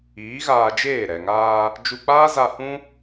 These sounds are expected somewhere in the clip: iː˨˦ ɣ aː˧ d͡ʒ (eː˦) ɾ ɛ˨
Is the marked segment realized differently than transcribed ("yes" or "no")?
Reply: yes